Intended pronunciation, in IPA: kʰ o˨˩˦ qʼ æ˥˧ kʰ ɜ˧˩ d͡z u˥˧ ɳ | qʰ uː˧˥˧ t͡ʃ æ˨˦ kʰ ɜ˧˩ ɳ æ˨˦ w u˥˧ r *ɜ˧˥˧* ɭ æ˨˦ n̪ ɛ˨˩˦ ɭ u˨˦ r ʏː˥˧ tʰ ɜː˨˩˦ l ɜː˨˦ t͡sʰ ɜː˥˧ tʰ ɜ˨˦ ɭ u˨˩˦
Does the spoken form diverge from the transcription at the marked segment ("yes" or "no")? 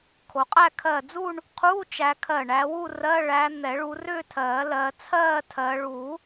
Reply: no